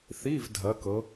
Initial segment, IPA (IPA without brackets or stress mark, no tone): θ